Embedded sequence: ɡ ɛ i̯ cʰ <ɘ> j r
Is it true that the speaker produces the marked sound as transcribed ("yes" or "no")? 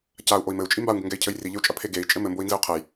yes